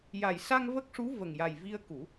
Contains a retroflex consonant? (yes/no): yes